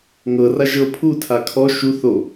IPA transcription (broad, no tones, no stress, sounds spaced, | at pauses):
ŋ ɤ r a ʒ ɤ pʰ u tʰ a kʰ ɔ ʃ u θ o